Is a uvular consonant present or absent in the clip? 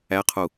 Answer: present